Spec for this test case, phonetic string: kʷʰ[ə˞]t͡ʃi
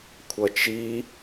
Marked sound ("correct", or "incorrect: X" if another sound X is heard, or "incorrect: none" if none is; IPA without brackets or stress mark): incorrect: ʌ